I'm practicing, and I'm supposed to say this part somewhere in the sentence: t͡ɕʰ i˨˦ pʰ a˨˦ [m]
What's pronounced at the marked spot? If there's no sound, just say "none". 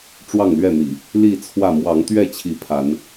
n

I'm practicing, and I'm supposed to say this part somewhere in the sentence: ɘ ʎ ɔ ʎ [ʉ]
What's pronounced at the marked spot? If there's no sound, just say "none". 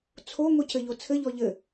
ɘ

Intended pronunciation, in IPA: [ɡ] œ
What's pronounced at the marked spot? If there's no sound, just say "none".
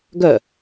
ɡ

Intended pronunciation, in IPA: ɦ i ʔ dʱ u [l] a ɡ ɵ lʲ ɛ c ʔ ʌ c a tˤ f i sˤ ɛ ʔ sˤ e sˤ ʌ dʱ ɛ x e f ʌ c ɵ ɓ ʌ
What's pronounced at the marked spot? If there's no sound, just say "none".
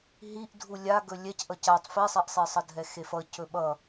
lʲ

